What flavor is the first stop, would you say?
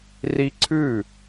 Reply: click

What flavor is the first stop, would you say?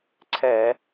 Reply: click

